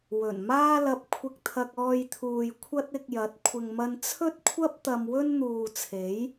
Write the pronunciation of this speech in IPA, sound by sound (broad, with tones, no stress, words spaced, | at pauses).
wɵ˨˩nmaː˥lɐ˧p̚ kʷʰɪ˧k̚t̪ʰɐ˧k̚ ɔː˧jt̪ʰuː˨j kʷʰɐ˥t̚ɪ˧k̚jɐ˨˥t̚ kʷʰɪ˨ŋmɐ˧n t͡sʰɵ˥t̚kʷʰɐ˥p̚ t̪ɐ˧mwɵ˥n n̪uː˨t͡sʰe˨˥j